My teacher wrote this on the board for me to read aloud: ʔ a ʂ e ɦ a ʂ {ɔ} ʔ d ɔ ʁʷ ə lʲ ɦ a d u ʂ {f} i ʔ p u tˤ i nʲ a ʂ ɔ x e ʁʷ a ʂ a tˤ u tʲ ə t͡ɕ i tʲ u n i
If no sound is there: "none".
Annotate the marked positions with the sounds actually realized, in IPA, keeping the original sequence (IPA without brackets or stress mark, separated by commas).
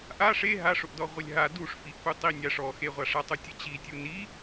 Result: ʊ, f